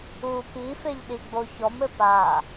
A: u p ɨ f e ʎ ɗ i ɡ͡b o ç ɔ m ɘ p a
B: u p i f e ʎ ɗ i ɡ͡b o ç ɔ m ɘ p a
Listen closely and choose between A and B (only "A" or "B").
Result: B